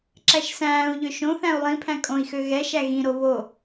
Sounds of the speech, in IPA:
ǁæʃsæ̃ːu̯ʎø ʃõθæ̃u̯ lˠĩpʰæ̃ kʼõi̯xø ɣɛʃæ ɣĩɾo βo

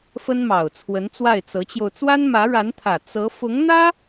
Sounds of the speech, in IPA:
fə˥nmɑ˨˩ʊ̯t͡sʰwə˧˥n t͡swa˥˩ɪ̯t͡sɤ˧˥t͡ɕjo˧ʊ̯ t͡swa˥nmä˧˥ɻa˧˥nt̪ʰä˨˩ t͡sɤ˧˥ fʊ˧˥ŋn̪ä˥

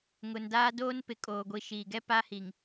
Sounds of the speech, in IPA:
ŋʊ˨ndaː˦ doː˦n pɪ˨kʼoː˨ɡʷi˨ ʃiː˨ɡɛ˦ pa˦hi˨ŋ

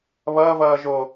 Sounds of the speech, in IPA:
βʌːvʌː ʒo

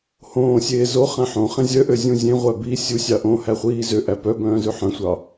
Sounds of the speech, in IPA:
hõːsʲeː zo χæ̃ħõχẽ zʲœʔø zʲũzʲẽʁʷæ bi sʲusʲɑ ʔõ hæχʷiːzøʔæ pœbœ̃ː zʉħœ̃sʷɑ

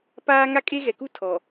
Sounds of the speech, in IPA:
paː˦ ŋa˦kʼe˦ɣɛ˨ku˦ tʰɔ˨

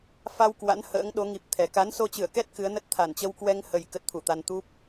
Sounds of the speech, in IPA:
fa˧w kwa̰˧˥nhə̰ː˧˥ŋɗo˨˦ ŋi˨˩p̚t̪ʰɛ˨˩ ka˨˦nso˧t͡ɕɨ˧˩ə̯kɛ˦˥t̚ kɨ˨˦ə̯nə˦˥t̚t̪ʰa˧˩n t͡ɕə˧wkwɛ˧ŋhə˨˩j kə˦˥t̚t̪ʰu˧˩t̪a˧n t̪u˦˥p̚

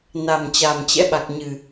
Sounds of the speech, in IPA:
na˨˩m t͡ɕa˨˩mt͡ɕɛ̰˧˥ɓa˨˩k̚ɲɨ˨˩

